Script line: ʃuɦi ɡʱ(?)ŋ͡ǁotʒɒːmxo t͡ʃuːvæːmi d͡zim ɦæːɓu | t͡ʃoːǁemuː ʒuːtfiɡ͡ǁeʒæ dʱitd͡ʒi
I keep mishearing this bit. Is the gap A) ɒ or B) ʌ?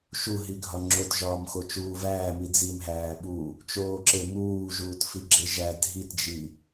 A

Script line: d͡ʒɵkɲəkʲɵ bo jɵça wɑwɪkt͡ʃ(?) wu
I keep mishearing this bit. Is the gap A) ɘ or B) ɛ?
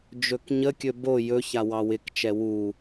B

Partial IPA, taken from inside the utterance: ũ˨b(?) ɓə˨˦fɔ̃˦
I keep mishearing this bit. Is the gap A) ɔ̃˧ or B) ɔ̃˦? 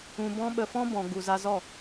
A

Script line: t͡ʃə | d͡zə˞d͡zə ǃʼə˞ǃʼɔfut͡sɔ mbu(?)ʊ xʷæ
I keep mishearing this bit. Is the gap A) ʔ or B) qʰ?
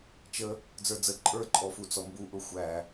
A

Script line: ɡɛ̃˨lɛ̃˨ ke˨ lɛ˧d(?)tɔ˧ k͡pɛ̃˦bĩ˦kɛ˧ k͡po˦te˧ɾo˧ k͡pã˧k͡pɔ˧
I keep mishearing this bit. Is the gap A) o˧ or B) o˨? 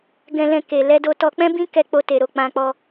A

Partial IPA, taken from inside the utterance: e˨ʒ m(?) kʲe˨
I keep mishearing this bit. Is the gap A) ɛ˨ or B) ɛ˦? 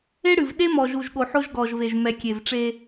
A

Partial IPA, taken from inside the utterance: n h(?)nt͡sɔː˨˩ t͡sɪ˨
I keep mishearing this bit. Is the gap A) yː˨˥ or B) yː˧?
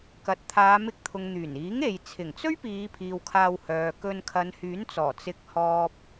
A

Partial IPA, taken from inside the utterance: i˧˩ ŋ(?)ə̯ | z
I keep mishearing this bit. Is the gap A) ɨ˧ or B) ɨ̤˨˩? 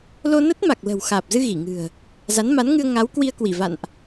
B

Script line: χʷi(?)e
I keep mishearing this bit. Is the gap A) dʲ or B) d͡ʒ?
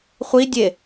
A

